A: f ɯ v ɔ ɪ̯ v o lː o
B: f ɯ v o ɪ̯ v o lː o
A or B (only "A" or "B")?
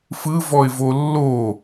A